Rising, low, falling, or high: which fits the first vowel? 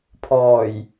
low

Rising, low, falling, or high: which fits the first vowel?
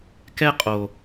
high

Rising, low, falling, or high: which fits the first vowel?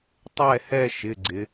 falling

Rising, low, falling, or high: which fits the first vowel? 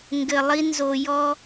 low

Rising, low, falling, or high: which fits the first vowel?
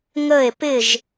falling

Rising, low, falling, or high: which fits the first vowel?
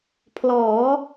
rising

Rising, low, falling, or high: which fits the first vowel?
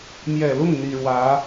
low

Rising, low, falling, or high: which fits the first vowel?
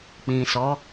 low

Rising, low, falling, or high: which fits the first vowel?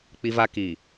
high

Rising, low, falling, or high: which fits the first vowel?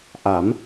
rising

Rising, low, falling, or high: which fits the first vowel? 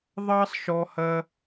high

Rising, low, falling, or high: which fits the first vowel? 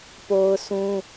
high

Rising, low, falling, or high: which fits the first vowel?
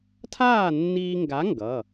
falling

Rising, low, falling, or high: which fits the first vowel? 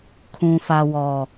low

